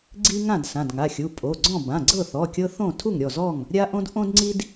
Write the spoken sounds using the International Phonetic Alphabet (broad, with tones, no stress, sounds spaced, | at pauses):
ɡ͡ǀ i˦ ŋ ã˥˨ d s ã˩˧˩ d ŋ a˩˧˩ xʲ u˩˧˩ pʼ o˩˧˩ ɡ͡ǀ ɔ̃˥˨ b ã˩˧˩ ɡ͡ǀ ɤ˥˨ θ ɔ˩˧˩ kʲ ɤ˦ θ õ˥˨ tʰ u˥˨ ŋ ɾʲ ɔ˥˨ z ɔ˥˨ ŋ | ɾʲ a˦ ʔ õ˦ d ʔ õ˦ d ŋ͡ǀ i˦ d